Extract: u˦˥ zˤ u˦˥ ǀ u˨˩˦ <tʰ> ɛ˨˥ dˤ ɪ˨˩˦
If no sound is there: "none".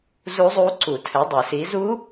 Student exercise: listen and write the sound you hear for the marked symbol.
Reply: tʰ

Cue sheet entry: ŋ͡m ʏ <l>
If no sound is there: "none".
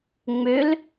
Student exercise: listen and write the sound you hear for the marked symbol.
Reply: l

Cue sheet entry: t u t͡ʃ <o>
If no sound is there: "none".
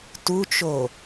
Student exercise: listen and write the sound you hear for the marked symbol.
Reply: o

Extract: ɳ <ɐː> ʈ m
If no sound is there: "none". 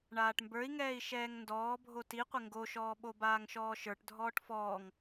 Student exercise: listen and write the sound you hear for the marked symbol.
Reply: aː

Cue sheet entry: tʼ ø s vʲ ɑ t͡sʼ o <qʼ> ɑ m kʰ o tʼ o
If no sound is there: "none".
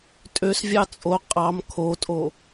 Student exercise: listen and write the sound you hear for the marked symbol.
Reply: qʼ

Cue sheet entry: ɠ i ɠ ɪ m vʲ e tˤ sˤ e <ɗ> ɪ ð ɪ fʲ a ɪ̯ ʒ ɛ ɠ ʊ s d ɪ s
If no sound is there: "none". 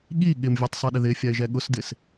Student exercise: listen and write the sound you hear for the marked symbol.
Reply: ɗ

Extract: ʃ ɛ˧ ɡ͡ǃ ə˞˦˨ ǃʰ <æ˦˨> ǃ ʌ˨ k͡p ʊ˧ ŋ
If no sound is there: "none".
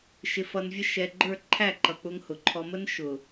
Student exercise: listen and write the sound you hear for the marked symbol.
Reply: æ˦˨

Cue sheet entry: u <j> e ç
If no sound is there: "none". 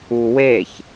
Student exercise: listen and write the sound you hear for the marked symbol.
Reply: w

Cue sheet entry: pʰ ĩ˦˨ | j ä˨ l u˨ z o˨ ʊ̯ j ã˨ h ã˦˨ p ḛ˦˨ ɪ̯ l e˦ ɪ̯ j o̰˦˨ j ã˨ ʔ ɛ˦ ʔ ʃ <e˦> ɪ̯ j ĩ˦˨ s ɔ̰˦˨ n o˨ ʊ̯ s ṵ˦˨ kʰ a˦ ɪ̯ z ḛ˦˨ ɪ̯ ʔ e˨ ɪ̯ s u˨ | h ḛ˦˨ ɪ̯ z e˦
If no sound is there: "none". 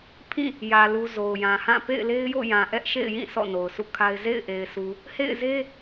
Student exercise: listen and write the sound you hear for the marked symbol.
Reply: ḛ˦˨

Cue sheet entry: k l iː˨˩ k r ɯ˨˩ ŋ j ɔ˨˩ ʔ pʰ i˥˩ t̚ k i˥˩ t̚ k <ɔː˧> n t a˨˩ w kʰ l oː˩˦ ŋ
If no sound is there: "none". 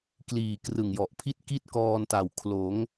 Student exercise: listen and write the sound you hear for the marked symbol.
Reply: ɔː˧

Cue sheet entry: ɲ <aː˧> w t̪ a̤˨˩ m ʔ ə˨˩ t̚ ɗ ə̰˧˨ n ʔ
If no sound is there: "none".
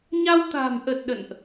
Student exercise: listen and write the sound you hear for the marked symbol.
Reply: a˧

